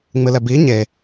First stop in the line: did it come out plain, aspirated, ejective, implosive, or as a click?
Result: plain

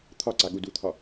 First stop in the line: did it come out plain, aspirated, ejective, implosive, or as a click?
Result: aspirated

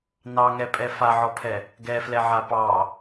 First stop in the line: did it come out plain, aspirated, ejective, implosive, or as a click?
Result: ejective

